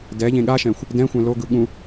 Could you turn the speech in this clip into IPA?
dɛʎẽ ɠaʃɛ̃xʷ | dɛ̃xʷɛ̃ loɡɯ ɠũ

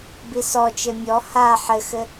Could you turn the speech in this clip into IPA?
bisɔt͡ʃɘ mʲɔ ha ħɘxɘ

